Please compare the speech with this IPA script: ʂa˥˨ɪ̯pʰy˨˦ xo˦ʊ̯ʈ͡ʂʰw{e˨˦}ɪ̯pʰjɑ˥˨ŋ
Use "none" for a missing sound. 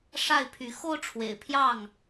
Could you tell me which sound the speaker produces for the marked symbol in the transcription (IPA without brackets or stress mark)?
ḛ˨˩